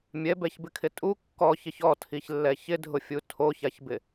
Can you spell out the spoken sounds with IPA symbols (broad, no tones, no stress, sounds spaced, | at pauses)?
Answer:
mʲ ɛ b ɛ ç b ɪ kʰ ɪ tʼ u kː ɔ ç ɪ ç ɔ tʰ i ç lː ɛ ç ɪ dʱ ʊ fʲ u tʰ o ç a ç b ɪ